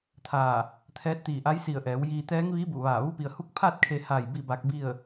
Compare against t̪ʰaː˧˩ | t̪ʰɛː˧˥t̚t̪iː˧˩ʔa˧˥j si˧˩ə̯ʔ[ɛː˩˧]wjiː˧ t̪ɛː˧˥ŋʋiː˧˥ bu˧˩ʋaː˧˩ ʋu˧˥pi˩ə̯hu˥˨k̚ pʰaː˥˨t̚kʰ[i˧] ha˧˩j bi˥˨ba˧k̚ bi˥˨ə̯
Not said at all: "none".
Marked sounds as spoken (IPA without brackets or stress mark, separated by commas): ɛː˩˧, e˧